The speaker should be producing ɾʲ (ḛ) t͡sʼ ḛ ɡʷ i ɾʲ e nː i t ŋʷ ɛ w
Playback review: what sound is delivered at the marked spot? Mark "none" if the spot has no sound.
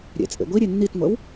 ɛ̰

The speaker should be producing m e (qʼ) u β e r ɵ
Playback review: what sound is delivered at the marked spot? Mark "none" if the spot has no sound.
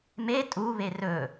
tʼ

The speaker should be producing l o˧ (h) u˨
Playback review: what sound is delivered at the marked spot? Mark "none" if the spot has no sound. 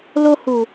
h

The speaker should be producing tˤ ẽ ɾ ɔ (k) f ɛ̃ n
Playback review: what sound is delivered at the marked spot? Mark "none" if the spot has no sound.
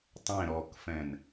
k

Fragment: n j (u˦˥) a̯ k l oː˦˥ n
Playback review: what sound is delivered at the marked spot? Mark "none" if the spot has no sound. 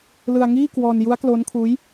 u˦˥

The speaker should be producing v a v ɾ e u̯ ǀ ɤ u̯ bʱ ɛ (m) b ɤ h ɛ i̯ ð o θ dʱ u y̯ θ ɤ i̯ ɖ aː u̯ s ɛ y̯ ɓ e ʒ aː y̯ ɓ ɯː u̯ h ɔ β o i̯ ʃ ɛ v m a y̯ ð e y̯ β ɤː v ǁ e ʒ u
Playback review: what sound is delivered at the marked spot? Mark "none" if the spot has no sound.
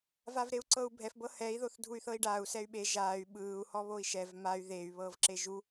f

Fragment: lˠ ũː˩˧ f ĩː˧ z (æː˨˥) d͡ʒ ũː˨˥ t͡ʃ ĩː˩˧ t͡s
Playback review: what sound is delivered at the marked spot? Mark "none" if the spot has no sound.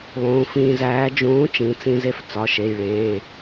æː˨˥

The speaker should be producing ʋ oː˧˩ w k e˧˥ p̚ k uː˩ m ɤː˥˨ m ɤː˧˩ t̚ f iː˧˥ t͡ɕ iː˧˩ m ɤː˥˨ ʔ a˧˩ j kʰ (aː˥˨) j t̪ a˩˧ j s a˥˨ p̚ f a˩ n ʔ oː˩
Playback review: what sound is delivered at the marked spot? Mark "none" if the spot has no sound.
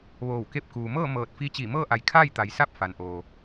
aː˥˨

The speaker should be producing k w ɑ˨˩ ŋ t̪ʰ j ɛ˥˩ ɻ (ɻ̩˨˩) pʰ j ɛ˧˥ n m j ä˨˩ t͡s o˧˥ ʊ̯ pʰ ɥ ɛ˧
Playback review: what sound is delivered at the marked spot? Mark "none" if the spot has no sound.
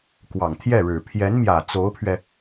ɻ̩˨˩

